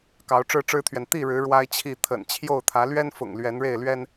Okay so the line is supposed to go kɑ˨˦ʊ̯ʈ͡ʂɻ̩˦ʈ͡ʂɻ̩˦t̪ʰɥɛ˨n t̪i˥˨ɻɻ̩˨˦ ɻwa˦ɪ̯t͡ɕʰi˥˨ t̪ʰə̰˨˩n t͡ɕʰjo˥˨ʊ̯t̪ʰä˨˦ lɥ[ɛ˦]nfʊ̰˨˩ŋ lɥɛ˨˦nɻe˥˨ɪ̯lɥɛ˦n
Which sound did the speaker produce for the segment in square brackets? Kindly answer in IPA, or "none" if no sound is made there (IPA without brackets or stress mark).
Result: ɛ˦